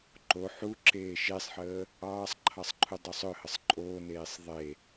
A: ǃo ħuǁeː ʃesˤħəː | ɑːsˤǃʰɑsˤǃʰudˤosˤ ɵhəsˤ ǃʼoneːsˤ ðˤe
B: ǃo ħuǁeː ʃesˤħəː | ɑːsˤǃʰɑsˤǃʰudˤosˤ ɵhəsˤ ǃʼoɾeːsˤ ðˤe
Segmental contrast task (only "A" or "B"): A